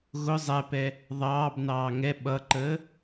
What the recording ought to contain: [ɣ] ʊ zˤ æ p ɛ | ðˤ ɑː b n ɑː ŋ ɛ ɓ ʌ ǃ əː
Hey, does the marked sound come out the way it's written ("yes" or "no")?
yes